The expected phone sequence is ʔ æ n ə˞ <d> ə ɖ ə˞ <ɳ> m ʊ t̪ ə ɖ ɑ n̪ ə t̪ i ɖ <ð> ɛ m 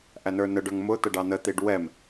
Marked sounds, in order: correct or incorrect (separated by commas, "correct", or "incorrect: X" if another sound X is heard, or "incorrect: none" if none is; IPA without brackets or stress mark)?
incorrect: n, incorrect: ŋ, incorrect: w